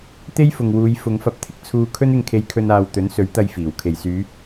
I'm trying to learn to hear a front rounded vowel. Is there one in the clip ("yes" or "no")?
yes